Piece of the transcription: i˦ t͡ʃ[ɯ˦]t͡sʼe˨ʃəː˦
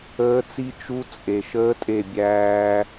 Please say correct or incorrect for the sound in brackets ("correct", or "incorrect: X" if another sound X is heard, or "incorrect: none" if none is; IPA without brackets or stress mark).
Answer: incorrect: u˦